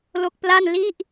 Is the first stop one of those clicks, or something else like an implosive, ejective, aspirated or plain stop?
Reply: plain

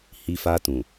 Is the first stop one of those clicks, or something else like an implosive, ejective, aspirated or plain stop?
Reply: plain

